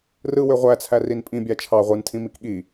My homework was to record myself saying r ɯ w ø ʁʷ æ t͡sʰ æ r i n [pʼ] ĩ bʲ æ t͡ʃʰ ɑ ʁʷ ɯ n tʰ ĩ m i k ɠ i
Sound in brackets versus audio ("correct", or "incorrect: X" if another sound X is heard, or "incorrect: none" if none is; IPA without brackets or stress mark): correct